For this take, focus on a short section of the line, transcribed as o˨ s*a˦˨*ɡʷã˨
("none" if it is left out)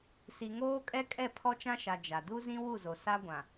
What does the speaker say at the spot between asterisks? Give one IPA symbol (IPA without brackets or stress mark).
a˦